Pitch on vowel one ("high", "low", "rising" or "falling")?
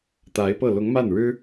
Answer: rising